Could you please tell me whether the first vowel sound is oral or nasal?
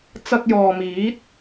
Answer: oral